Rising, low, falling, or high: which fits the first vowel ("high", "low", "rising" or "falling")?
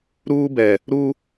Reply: high